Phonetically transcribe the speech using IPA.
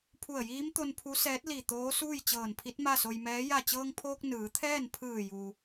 pʰ u˧˩ ə̯ j iː˧˥ m t̪ o˧ n pʰ u˧˥ s ɛː˧˥ t̚ l i˧˩ t̪ oː˧˥ s uː˥˨ j t͡ɕ ɤː˧˩ n pʰ i˧˥ t̚ m a˥˨ s o˧ j m ɛː˧˥ j a˧˩ t͡ɕ ɤː˧ ŋ pʰ oː˧ k̚ n ɯː˩˧ t̪ʰ ɛː˥˨ n pʰ ɯː˧˩ j u˩

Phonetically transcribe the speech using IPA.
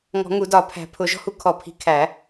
ŋ ɔ̤˨˩˦ ŋ u˨˩˦ d ɒ˨˩˦ pʰ æ̤˨˩˦ pʰ ʊ˨˩˦ ʒ ɔ̤˦ h u˦ kʰ ɔ˨˩˦ pʰ i̤˨˩˦ kʰ æ˨˩˦

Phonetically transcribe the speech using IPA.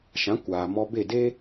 ʃ ã˨˦ kʷ aː˨ m ɔ˧ b e˦˨ d e˦

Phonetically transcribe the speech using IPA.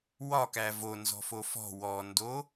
w ɒ k æ v o n z ɔ̤ f o f ɔ̤ w ɔ n d o

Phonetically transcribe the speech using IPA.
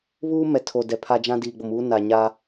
β uː˦ m ɛ˨ tʰ o˨ d ɛ˨ pʰ a˦ d͡ʒ ã˦ d iː˨ ɡ͡b o˨ m uː˦ n a˨ ɲ a˦

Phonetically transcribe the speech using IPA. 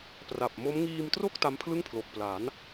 p r a˨˩ p̚ m o˦˥ m ŋ iː˧ m t r o˥˩ k̚ t a˦˥ m pʰ l ɯ˥˩ ŋ pʰ l o˨˩ k̚ p l a˩˦ n

